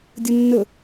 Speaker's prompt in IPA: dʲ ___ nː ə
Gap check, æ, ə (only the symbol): ə